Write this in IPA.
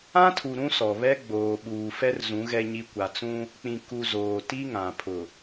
ã˦tʰu˨ ɾũ˦sɔ˨βɛ˦ ɡ͡boː˨ɓuː˨fɛ˦rzũ˨˦ ɣɛ˨ɲi˨ kʷa˨t͡sũ˦ | k͡pĩ˨ ku˨ zoː˨ ti˦ŋã˨ pʰʊ˨

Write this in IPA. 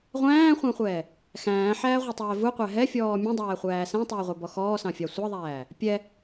ʁʷæ̃ːχʷæ̃χʷɛː | xæ̃ːħæːʁʷɛtˤɛː vuqʷæ ɦɛfʲɔː mʲũdˤæːχʷæː sæ̃tˤʊːʁʷə˞bɔ xɔːsɑ̃fʲɑ sʷɑðˤæː | pʲɛ

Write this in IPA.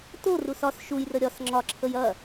to rusɒs ʃujrə ɾʲɒs ŋ͡ǁɒǁʰəj ɐ

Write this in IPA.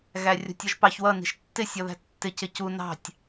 ɣærʲɔ̤tʲɔʒpɑç wʌ ni̤ʃtːɪ sʲɔðæ̤tːɪ cɪcu nɑ̤tʲ

